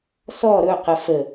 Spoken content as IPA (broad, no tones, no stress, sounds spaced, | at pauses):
s ɔ ɾ ɵ q ə f ə